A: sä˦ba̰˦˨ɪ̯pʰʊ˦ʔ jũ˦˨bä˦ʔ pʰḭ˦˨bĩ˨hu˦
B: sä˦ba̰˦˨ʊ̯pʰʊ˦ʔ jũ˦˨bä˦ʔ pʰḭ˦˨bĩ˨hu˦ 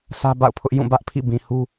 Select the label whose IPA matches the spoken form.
B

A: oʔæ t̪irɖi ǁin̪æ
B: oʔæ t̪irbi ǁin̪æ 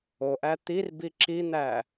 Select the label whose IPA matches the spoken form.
B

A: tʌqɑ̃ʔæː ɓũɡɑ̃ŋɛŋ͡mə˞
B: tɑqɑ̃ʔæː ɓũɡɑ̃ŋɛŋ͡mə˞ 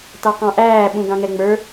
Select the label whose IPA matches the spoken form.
B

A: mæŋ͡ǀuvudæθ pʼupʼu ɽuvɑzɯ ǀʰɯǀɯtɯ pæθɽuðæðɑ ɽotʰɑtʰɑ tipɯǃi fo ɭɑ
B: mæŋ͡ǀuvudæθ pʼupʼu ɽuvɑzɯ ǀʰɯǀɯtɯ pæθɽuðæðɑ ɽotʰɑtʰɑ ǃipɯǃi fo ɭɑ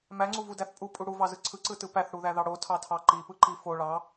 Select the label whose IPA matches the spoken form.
B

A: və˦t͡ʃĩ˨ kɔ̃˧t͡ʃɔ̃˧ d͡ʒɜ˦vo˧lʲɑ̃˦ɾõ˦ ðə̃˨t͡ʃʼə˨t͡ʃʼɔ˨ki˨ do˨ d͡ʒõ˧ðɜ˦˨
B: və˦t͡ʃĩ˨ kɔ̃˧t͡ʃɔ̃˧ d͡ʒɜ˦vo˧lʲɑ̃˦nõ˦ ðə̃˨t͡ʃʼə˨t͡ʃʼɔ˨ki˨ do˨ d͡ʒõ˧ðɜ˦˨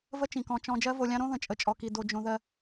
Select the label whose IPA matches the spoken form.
A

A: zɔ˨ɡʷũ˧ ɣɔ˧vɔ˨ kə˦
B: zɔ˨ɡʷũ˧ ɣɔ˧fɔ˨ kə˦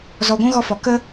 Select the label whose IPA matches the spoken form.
B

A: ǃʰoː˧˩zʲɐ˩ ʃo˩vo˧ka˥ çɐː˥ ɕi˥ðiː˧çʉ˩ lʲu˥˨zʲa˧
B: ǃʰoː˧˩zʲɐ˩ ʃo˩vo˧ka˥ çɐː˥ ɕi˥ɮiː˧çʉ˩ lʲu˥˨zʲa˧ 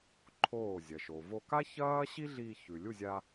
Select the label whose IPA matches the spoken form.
B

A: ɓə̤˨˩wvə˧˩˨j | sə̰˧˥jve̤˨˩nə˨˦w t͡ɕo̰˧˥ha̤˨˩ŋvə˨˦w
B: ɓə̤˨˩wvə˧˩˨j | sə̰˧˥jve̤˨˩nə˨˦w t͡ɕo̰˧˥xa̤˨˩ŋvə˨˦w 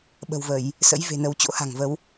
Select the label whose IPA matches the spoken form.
A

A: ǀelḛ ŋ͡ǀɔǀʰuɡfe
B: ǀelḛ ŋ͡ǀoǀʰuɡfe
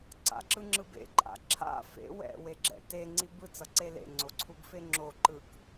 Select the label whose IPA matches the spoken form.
B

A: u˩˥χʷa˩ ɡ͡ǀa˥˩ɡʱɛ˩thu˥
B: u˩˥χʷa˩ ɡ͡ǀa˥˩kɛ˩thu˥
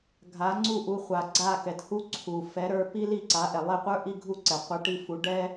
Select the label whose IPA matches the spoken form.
B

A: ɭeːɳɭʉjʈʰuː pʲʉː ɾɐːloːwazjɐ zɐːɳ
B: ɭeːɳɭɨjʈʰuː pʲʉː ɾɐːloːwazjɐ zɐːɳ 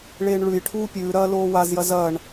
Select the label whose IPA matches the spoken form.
A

